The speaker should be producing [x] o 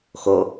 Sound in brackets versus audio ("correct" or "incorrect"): correct